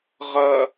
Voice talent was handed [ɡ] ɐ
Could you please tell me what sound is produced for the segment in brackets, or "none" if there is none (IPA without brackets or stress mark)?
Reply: ʁ